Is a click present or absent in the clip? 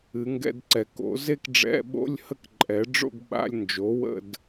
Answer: present